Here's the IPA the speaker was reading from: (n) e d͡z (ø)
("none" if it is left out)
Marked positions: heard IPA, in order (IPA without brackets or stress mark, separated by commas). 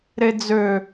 ɾ, ø